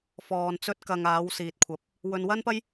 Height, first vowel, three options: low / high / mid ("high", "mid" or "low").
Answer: mid